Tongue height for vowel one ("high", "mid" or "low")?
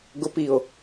high